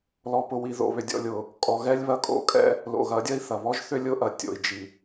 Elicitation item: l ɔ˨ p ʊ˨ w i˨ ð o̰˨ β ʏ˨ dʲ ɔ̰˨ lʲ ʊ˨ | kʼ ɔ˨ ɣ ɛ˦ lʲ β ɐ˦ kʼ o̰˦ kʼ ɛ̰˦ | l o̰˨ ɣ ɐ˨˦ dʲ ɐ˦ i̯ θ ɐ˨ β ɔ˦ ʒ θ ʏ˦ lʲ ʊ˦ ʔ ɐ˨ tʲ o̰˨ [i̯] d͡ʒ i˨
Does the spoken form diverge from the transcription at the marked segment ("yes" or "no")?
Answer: no